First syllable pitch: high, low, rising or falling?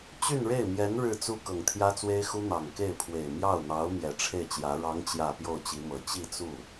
falling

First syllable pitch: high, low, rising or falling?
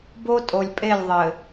high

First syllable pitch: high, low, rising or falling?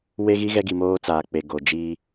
high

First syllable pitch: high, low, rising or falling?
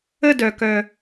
falling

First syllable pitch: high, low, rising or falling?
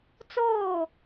falling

